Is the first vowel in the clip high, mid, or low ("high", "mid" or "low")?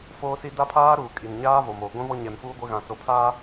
mid